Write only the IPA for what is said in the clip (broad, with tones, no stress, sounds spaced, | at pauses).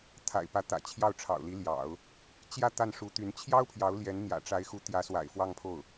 t̪ʰ a̰˨˩ ɪ̯ p ä˧˥ t̪ ä̰˨˩ t͡ɕʰ j ɑ˥˩ ʊ̯ ʈ͡ʂʰ ɑ̰˨˩ ʊ̯ l i˧˥ l j ɑ̰˨˩˦ ʊ̯ | t͡ɕ j ä˥˧ t̪ a˥˩ n ʂ u˧˥ t̪ y˧˥ n t͡ɕʰ j ɑ˥ ʊ̯ pʰ j ɑ˧˥ ʊ̯ l j ɛ˧˥ n n̪ j ä̰˨˩ ʈ͡ʂ a˧˥ ɪ̯ x u˧˥ t̪ j ä˧˥ s w a̰˨˩ ɪ̯ f w ɑ˥˧ ŋ pʰ o˥˩ ʊ̯